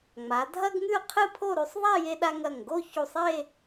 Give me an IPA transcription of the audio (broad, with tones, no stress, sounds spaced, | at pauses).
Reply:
ŋ͡m a˩˧ dʱ ɐ˥ ɡ ŋ ʉ˥˧ qʰ ɨ˥˧ pʰ o˥˧ ɾ ʉ˧ sˤ ðˤ a˥˧ j e˧ ɗ a˧ ŋ ɐ˧˩ ŋ ɡ o˥˧ ç u˧˩ sˤ e˥˧